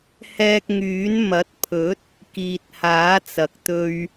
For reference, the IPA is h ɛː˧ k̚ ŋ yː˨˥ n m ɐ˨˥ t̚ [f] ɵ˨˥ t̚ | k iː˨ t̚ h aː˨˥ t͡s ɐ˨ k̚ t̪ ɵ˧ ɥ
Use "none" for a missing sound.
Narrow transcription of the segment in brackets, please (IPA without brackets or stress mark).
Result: pʰ